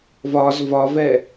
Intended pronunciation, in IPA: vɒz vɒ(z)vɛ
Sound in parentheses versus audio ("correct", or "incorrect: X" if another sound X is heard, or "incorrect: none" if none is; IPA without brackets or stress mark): incorrect: none